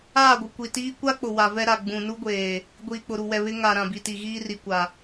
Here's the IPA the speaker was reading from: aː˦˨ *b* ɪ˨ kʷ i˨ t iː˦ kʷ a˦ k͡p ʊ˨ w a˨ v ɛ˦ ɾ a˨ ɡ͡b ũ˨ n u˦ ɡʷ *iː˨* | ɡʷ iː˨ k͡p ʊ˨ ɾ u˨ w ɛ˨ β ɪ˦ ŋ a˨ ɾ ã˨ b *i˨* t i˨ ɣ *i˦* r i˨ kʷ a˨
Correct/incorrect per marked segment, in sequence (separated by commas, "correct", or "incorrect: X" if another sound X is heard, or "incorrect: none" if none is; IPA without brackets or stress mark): incorrect: ɡʷ, incorrect: eː˨, correct, incorrect: iː˦